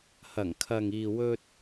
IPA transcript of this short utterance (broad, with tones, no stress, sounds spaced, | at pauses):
h ɐ˨˩ ŋ kʰ ɐ˨ ŋ iː˨ w ɵ˧ t̚